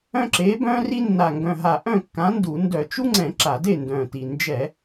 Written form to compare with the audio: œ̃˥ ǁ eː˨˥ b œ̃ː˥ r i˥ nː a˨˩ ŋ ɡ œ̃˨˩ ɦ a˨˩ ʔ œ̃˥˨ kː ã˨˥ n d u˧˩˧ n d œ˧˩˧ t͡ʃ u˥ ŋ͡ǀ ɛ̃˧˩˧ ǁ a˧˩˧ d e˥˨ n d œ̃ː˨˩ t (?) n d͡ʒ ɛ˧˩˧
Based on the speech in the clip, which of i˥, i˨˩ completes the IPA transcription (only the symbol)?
i˨˩